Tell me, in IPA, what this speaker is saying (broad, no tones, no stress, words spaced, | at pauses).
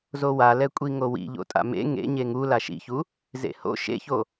zowalɛkʷʼi ŋowḭ ʎo̰tʼa̰mḛ ŋḛ ɲeŋu laʃḭçu | zḛho̰ ʃḛço